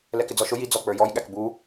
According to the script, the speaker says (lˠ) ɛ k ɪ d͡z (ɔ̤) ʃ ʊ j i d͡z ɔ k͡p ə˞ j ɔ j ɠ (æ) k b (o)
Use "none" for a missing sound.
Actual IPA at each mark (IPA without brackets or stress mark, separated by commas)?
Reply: l, ɔ, æ, u